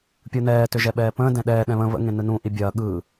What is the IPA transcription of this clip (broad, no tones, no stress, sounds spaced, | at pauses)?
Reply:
pʲ ɯ n ɛː t ʏ ʒ ɛ ɓ ɛː p ə̃ː d ɛ̃ ɗ ɛː ɗ ɛ̃ β ə̃ β ə̰ ŋ ẽ n ɯ n ũ ʔ i bʲ ɐː ɠ ɯ